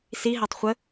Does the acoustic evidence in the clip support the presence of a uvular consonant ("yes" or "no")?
yes